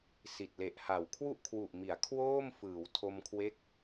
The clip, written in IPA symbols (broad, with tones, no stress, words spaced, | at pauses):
si˨˩t̚le˨˩ʔha˨˩w kʰwu˥˩ʔkʰwu˨˩ʔmi˩˦a̯ kʰwoː˥˩m fɯː˩˦wtʰo˧mkʰwe˦˥k̚